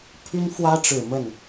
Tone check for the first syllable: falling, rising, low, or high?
high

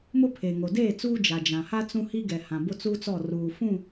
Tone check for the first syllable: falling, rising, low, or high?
high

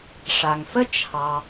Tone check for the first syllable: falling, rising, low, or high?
low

